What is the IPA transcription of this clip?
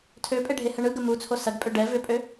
tʰ ø pʼ e ɖʱ e h ə ɳ ɯ ɡ ə m u t͡sʰ o s ɐ ɡ pʼ ø ɖ ɛ v ʏ pʼ ø

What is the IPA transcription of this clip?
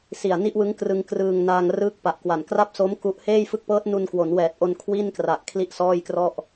s i˨˩ a̯ n i˥˩ ʔ w ɯ˦˥ ŋ k r ɯ˧ ŋ k r ɯː˧ ŋ n aː˧ ŋ r ɯː˦˥ k̚ p a˨˩ ʔ k w a˨˩ n k r a˥˩ p̚ s o˦˥ m k u˦˥ ʔ h eː˥˩ j f ɯ˦˥ k̚ p ɤː˦˥ t̚ n u˧ n k w o˩˦ n w ɛː˨˩ t̚ ʔ o˧ n kʰ w i˥˩ n k r a˨˩ ʔ kʰ l i˥˩ ʔ s ɔː˥˩ j k r ɔ˥˩ ʔ

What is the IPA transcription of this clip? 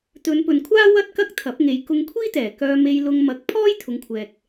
t̪ ɵ˨˧ n p ɵ˨ n kʷʰ aː˥ w ɐ˥ t̚ k ɐ˥ k̚ t̪ʰ ɐ˨˥ p̚ ŋ e˨˧ j k ʊ˧ ŋ kʷʰ iː˥ t̪ ɛː˨˩ k œː˧ m e˧ j l ʊ˧ ŋ m ɐ˨˥ k̚ pʰ ɔː˥ j t̪ʰ ʊ˨˧ ŋ kʷʰ ɛː˨ k̚

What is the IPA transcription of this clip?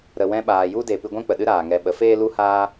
ɾ ə˨ w ɛ̃˧ ɓ aː˨ j u˦ d e˨ p ɨ˧ ɡʷ ɛ̃˦ k͡p ə˨ ɗ ɨ˦ ɾ aː˨ ŋ ɛ˧ ɓ ə˨˦ f eː˦ l u˦ h aː˦

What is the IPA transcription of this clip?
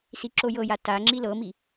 s i ǁ o j ɤ j a t a ŋ͡ǁ i l ɤ m i

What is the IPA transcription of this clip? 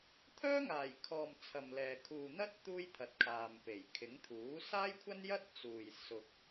t̪ʰ œː˥ ŋ aː˨˩ j kʰ ɔː˨ m t͡sʰ ɐ˨ m l ɛː˨ kʰ uː˨ n̪ ɐ˥ t̚ t̪ uː˥ j t̪ʰ ɐ˨˥ t̚ kʰ aː˨ m p e˨˩ j kʰ ɪ˨˥ ŋ t̪ʰ uː˨˥ s aː˥ j kʷʰ ɐ˥ n j ɐ˥ t̚ t͡s uː˨ j s ʊ˨ k̚

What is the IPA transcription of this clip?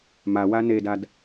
m a w a n e d a d

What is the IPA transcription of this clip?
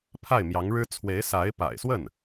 pʰ a˥˩ ɪ̯ m j ɑ˧˥ ŋ ɻ ɻ̩˥ t͡sʰ w e˧˥ ɪ̯ s a˧˥ ɪ̯ p a̰˨˩ ɪ̯ s w ə˥˩ n

